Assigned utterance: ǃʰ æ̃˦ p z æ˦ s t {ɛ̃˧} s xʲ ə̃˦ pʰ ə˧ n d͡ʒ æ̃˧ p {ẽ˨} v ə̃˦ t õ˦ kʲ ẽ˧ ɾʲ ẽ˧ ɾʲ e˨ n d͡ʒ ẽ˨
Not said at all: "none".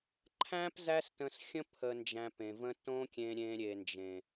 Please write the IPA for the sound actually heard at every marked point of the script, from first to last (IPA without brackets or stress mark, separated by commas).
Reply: ə̃˧, ẽ˨